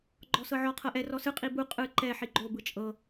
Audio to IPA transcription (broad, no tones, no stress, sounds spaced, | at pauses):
ɡ͡ǃ ɔ s ɤ ʕ ɔ qʰ ɤ ʔ ɛ r ɔ s ɯ qʼ i b u qʼ ɯ ǃ ɛ ħ i ɡ͡ǃ o b ɯ t͡ʃʼ ɤ